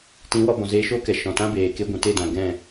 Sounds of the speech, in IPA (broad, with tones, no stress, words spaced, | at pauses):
tĩ˨˦wɔ˧ bɔ̃˨ zeː˧ʃoː˦kɛ˨ ʃɔ̃˨tã˦beː˨ ke˧ɡʷũ˨ te˦˨dã˨ ɡɛ̃˦˨